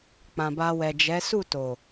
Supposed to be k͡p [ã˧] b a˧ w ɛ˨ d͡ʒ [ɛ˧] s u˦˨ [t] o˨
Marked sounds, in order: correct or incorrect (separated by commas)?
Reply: incorrect, incorrect, correct